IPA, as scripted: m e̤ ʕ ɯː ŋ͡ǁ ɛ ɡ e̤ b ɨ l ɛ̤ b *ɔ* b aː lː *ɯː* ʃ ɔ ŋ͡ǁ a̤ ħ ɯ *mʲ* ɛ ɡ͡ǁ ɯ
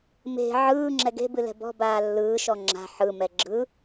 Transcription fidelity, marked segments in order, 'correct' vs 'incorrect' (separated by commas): incorrect, correct, incorrect